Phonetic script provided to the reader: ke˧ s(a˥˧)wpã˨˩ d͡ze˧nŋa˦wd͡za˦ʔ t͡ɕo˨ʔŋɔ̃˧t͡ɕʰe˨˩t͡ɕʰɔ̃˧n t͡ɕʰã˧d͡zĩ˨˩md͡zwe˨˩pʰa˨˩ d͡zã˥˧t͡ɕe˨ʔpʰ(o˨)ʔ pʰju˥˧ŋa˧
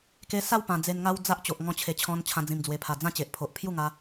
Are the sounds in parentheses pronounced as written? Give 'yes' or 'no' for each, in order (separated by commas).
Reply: yes, yes